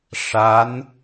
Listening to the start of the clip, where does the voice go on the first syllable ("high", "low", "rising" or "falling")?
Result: rising